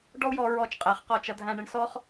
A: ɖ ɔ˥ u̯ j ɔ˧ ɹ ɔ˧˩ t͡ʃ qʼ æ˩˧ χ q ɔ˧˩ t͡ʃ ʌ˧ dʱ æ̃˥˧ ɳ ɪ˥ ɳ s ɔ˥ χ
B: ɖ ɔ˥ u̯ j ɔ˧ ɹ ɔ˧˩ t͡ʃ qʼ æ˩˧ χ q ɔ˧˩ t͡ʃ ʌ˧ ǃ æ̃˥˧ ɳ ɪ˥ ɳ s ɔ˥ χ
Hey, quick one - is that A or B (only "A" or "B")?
A